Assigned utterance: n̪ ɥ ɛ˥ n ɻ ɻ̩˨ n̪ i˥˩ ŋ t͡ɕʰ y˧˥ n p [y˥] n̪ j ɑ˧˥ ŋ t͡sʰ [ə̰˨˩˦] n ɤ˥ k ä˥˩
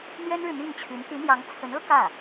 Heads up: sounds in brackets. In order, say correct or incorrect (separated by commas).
incorrect, incorrect